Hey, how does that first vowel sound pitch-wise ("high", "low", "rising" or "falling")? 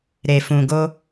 low